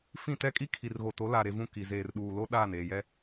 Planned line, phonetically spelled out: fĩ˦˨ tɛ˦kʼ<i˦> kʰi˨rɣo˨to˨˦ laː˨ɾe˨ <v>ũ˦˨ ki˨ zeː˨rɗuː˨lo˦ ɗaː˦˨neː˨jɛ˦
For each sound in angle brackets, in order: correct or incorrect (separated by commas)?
correct, correct